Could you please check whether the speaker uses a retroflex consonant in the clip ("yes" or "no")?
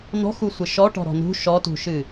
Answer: yes